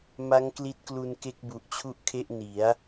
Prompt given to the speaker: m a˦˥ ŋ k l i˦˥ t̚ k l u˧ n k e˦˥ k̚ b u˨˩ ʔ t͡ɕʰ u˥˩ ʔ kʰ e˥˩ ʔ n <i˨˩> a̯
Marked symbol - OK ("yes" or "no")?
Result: no